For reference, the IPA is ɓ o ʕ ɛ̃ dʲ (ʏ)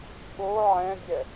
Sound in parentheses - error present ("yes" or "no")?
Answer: yes